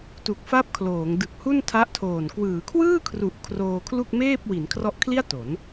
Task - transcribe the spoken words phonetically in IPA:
t u˨˩ k̚ f a˦˥ p̚ kʰ l oː˩˦ ŋ d ɯ˨˩ k̚ h u˥˩ n tʰ a˦˥ ʔ tʰ oː˨˩ n k w ɯː˩˦ kʰ w ɯː˥˩ kʰ r u˨˩ ʔ kʰ r oː˧ kʰ l u˥˩ k̚ m eː˥˩ p̚ w i˩˦ n kʰ r ɔ˦˥ ʔ kʰ l i˥˩ a̯ t o˩˦ n

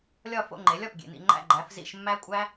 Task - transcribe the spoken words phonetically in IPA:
lʲ ɒ˦˨ f o̰˦˨ ŋ͡ǃ e˩˥ lʲ ɒ˨ p ɡʲ ḛ˨ n ḭ˨ ŋ͡ǃ æ̰˦˨ ɡ͡ǃ æ˩˥ f z ḭ˦˨ ʃ mː æ˦ kʷʼ æ˦

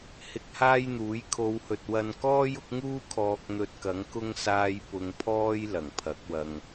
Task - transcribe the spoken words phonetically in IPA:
h ɪ˧ k̚ h aː˥ j n̪ uː˨˥ j kʰ o˨˧ w h ɵ˨ t̚ w ɐ˧ n k ɔː˥ j ʊ˨˥ k̚ ŋ uː˥ kʰ ɔː˧ k̚ n̪ ɵ˧ t̚ k ɐ˨˥ ŋ k ʊ˥ ŋ s aː˧ j p ʊ˧ ŋ pʰ ɔː˥ j l ɐ˨˩ ŋ pʰ ɐ˨˥ k̚ w ɐ˧ ŋ

